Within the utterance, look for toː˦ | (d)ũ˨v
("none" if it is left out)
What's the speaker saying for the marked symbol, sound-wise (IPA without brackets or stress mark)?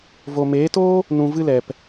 n